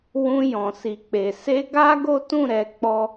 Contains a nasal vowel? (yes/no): yes